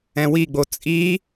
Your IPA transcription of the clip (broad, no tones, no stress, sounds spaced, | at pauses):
ɛ̃ w i ɡ͡b o t͡sʼ i